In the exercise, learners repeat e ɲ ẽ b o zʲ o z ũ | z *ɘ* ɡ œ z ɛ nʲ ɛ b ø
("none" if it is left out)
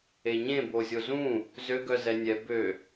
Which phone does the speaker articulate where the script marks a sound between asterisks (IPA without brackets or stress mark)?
ø